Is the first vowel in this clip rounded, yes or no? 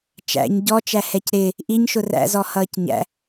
no